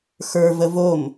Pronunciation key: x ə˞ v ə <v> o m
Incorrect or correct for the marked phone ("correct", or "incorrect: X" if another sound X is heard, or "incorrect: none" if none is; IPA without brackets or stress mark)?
correct